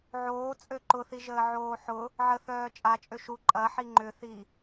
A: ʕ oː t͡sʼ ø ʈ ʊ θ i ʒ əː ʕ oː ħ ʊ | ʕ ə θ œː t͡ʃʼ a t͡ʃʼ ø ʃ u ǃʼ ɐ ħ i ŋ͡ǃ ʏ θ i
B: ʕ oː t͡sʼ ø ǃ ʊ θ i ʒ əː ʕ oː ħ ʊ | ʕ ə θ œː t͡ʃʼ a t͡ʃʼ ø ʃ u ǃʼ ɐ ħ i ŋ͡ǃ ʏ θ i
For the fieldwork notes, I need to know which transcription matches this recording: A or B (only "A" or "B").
B